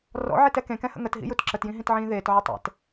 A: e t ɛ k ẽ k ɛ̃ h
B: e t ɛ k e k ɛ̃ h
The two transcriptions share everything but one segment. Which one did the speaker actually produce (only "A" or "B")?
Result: A